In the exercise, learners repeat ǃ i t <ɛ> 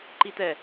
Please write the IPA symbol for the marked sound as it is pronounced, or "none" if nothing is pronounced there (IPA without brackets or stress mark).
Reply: ɛ